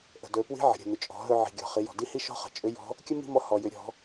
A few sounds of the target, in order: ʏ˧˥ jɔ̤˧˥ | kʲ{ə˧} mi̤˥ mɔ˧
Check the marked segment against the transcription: incorrect: ə˥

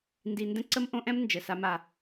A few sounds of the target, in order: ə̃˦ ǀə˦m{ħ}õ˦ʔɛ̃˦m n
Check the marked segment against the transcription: incorrect: ʔ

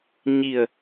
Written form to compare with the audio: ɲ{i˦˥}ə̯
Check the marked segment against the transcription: incorrect: i˨˩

